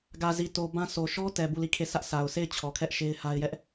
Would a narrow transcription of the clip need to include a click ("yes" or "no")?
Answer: no